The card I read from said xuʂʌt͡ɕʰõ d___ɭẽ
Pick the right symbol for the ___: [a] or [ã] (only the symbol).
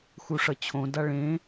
a